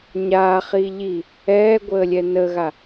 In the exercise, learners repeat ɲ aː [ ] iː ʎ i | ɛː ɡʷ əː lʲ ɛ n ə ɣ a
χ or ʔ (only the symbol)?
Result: χ